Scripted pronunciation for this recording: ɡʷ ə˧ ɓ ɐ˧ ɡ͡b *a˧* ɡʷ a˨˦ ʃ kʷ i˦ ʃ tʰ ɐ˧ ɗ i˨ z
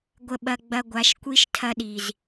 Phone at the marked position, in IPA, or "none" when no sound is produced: ɐ˧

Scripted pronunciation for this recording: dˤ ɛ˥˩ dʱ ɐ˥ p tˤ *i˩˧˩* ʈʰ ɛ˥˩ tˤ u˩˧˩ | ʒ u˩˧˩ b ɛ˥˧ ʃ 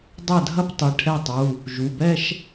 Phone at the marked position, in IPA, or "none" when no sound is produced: i˩˧˩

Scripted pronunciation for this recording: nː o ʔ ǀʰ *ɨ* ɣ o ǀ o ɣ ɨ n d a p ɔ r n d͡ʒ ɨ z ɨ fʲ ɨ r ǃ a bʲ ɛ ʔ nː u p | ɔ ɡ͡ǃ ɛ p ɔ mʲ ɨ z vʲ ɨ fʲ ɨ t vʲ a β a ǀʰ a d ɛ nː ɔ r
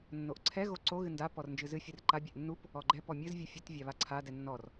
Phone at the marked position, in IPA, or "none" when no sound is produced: ɛ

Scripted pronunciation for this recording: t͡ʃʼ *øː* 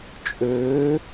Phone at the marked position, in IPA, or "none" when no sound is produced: øː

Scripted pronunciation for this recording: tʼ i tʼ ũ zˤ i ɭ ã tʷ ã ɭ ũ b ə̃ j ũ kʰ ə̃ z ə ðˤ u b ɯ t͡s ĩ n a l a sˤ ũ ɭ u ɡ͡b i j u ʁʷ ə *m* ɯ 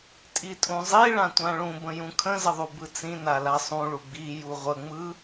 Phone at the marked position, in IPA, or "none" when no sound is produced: ŋ͡m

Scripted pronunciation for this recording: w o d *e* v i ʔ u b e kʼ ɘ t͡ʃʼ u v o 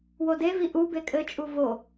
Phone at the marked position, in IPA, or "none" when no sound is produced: e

